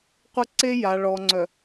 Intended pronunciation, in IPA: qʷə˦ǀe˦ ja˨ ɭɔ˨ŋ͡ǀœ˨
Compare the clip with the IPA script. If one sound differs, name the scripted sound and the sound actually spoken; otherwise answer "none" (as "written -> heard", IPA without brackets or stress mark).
none